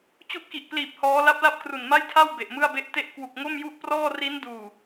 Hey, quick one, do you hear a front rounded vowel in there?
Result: no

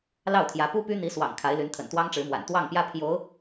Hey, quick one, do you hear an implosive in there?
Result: no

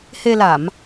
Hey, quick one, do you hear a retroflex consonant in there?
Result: no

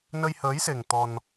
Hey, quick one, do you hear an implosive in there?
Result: no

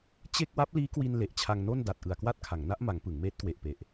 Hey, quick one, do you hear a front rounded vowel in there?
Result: no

